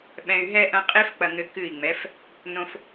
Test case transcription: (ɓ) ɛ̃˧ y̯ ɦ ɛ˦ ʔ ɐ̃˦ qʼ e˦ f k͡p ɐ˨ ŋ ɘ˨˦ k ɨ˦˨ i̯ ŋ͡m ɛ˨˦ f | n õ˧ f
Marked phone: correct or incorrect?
correct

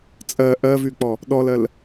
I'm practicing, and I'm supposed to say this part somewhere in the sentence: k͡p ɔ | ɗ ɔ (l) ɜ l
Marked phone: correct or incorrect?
correct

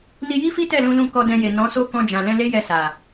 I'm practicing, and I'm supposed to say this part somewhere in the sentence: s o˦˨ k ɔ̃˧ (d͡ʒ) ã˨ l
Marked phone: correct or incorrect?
correct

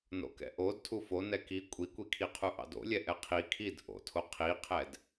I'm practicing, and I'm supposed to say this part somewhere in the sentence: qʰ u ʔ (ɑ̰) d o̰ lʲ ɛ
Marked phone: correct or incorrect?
correct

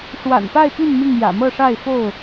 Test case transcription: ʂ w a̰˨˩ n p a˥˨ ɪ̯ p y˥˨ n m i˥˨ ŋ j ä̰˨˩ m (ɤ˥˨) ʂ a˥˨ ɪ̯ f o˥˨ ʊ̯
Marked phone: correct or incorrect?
correct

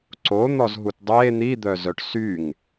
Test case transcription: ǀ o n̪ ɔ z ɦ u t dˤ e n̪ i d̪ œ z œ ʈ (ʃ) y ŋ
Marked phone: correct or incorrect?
incorrect: s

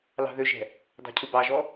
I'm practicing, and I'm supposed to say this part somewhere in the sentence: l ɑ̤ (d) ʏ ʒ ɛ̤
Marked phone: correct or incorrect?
incorrect: ð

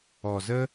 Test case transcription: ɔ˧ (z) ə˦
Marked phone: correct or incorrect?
correct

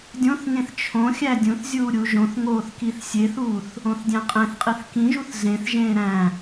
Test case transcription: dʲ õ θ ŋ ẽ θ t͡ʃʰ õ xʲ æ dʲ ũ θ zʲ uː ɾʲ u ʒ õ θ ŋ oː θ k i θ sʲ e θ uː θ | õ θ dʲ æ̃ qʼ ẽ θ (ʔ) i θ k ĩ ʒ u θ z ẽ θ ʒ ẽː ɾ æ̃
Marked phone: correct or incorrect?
incorrect: qʼ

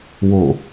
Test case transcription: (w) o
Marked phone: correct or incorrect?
correct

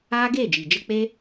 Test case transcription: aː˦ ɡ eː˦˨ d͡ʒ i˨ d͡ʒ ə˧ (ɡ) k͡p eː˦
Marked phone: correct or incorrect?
incorrect: none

